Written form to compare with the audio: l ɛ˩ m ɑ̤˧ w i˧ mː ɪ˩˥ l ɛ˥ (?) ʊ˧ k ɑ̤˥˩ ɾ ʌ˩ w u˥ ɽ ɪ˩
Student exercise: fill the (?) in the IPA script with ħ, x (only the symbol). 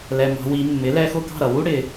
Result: x